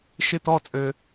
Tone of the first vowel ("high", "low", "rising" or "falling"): falling